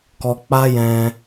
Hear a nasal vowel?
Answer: yes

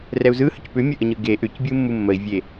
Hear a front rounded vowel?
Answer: yes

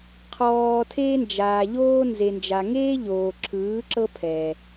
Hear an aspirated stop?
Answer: yes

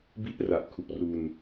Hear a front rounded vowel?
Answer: no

